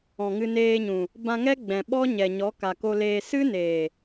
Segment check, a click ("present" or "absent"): absent